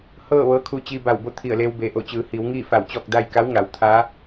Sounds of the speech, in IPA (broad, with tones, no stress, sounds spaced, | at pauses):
h ɤː˥˨ ʋ ɤː˧˥ kʰ u˧ t͡ɕ iː˧ b a˧˩ w b o˥˨ t̪ʰ i˧˩ ə̯ l eː˧ w b eː˩ ʔ o˧˩ t͡ɕ ɯː˩˧ h iː˩˧ w ŋ iː˥˨ f a˧˩ w t͡ɕ ɔː˥˨ k̚ d a˥˨ j k a˧˥ w ŋ a˩˧ w t̪ʰ aː˧˥